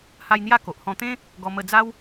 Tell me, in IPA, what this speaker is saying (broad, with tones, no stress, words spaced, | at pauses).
ha˧j n̪ja˥˧ko˨ʔhɔ̃˧ t̪ẽ˦ | ɡɔ˧ mə˧d͡za˦w